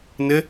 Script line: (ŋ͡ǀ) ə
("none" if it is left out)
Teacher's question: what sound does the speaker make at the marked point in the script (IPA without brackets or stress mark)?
n